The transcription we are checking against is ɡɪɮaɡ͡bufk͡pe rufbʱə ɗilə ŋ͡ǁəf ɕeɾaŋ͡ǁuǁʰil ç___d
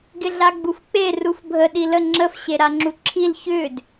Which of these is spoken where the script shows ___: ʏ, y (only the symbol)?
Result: ʏ